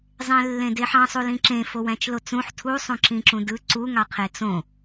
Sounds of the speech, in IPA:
zˤ ẽ lː ẽ d e ħ ɑ̃ sˤ u l ĩ ǁ ẽ f o w æ̃ t͡ʃ l o t͡s ũ ħ tʰ u sˤ ũ ǁ ĩ ǁ ũ d ɯ ǀ u ŋ ɑ qʰ e t͡s õ

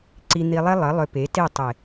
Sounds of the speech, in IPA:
ǀ i˧ n̪ i˧ lˠ e˦ lˠ ə˨˦ lˠ ʏ˧ p e˨˦ t e˦˨ tˤ e˨

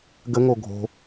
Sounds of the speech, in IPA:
ɡ ə ŋ o ɡʱ o̤

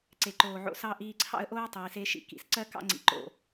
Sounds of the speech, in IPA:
ǀ e˨ ǃ oː˨ ʕ o̰˧ s ɑ˦ ʔ iː˧ ǀʰ ɑ̰˦ ə̯ ʔ oː˦ tˤ iː˨ s e˦ ʃ ḭ˧ k ḭ˨ s ǀ ɜ˦ k ɑ̰˦ ŋ͡ǀ ḭ˨ ǃ o̰˨

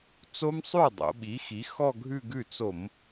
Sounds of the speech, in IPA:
t͡s o˦˥ m sˤ ʉ˥˩ dˤ o̰˩˧ ɓ i˩˥ x i˩˥ x ɔ˥˧ ɡʱ ʉ˥˧ ɡ ʉ˥˩ t͡s o˧˩˧ m

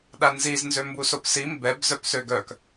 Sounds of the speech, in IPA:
ɗ a n z i z n z ø m b u s o p s i m b ɛ b z œ p s ø ɡ œ k

